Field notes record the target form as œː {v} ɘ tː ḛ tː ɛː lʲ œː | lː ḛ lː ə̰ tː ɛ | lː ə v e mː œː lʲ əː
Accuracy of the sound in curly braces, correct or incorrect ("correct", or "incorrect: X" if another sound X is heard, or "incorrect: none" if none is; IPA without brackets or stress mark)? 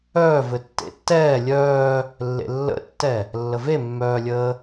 correct